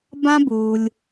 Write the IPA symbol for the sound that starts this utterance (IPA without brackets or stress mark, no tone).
b